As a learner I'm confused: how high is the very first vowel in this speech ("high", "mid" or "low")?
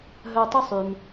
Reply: mid